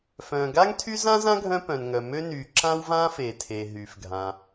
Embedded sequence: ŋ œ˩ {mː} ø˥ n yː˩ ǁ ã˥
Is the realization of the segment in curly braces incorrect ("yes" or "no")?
yes